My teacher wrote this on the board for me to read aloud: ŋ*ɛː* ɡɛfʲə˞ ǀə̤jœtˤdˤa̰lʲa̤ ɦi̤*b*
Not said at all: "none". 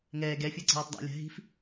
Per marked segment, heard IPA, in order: ɛː, f

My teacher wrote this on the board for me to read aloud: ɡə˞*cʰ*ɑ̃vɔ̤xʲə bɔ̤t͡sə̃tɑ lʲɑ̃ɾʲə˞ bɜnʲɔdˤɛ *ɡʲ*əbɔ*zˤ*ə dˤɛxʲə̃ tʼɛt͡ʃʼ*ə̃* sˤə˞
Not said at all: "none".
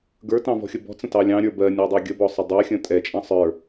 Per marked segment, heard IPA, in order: t, ɡʲ, sˤ, ɑ̃

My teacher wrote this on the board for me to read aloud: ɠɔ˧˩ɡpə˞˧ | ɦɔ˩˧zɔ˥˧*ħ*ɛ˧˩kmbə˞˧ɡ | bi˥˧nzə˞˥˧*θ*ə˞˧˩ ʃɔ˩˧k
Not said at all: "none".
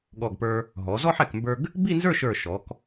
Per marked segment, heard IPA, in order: ħ, ʃ

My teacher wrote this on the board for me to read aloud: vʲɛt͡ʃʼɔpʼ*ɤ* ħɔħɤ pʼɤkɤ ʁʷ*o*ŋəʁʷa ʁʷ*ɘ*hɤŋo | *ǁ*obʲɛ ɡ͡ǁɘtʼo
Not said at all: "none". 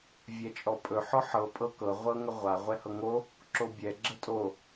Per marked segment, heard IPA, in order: ɵ, ɤ, ɛ, ǁ

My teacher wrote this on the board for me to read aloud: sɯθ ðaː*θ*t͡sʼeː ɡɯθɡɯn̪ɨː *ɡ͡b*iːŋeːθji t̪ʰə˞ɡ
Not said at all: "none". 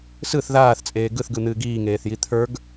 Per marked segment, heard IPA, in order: θ, ɡ

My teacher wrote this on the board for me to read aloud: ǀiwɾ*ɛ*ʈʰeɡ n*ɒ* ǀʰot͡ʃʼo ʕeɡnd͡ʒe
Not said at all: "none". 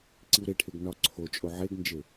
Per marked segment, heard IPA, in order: e, ɒ

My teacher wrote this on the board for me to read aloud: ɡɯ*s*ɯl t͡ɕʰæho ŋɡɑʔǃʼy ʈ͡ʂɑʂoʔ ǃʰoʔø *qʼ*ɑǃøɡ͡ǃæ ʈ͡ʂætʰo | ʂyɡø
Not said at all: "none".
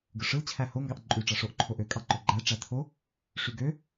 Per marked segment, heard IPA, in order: ʂ, kʼ

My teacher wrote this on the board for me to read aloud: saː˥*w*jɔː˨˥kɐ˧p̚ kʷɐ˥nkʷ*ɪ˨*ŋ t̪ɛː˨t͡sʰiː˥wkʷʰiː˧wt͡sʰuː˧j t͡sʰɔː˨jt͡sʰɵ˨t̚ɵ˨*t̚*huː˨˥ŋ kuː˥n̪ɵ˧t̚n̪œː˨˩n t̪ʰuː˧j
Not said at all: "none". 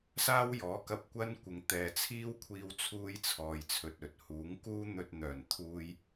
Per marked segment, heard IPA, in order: w, ɪ˨, t̚

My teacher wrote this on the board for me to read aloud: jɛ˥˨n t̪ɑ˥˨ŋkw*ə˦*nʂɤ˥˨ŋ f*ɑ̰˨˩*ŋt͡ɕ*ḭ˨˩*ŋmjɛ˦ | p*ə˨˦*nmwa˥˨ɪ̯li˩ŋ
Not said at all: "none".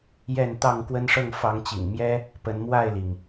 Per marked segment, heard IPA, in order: ə˦, ɑ˨˦, ḭ˨˩, ə˨˦

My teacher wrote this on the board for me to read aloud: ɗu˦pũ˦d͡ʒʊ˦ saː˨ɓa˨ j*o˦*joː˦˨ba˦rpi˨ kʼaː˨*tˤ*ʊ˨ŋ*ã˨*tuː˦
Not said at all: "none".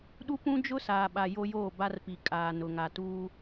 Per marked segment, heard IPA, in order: o˦, n, a˨

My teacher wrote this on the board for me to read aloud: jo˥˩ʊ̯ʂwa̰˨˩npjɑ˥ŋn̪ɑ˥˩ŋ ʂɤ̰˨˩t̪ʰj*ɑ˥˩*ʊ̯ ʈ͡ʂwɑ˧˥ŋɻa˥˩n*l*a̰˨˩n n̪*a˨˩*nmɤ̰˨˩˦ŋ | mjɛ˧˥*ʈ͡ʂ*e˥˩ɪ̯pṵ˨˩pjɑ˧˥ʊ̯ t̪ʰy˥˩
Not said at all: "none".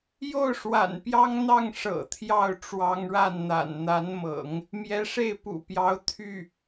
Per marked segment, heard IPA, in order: ɑ˥˩, n̪, a˧˥, ʂ

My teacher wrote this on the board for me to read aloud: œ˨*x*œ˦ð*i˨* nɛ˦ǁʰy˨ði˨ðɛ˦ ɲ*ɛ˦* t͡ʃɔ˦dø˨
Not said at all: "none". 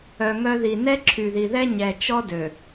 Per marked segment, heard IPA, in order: ŋ, i˨, ɛ˨

